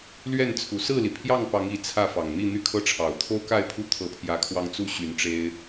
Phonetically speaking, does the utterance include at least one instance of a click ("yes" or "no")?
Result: no